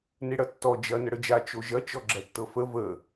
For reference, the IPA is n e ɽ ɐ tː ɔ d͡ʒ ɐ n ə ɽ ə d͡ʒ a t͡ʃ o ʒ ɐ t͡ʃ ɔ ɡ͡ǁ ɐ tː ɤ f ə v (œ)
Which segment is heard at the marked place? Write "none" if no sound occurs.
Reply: ə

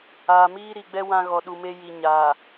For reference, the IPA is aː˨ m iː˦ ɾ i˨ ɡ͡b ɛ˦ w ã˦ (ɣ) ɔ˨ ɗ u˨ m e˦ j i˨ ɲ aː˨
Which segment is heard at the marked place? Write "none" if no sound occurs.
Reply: ɣ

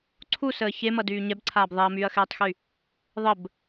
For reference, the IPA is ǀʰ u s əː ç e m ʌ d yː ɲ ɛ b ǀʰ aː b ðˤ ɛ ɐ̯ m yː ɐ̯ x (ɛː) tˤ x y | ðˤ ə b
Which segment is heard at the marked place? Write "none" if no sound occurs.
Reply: ɛː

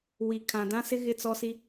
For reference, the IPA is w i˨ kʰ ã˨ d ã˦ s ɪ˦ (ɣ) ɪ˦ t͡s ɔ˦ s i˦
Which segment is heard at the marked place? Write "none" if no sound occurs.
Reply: ɣ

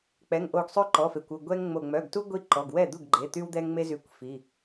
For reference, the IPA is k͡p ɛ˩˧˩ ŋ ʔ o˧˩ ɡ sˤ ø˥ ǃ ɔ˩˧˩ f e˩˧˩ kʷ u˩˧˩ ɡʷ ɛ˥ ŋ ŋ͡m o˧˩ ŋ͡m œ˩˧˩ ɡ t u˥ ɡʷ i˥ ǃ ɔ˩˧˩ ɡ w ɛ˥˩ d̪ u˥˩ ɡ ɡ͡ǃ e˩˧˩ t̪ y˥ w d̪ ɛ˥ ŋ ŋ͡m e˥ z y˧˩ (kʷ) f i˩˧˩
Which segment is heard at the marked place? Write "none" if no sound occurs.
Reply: kʷ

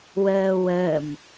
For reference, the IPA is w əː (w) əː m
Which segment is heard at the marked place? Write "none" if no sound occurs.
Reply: w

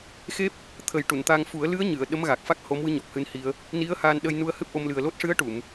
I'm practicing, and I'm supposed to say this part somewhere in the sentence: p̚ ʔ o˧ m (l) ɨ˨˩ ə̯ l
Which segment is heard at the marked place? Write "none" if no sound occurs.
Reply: l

